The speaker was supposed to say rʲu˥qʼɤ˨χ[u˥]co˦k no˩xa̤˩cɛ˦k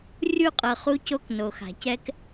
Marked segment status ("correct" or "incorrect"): incorrect